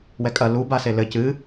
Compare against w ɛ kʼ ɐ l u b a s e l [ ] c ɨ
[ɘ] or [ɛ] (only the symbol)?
ɘ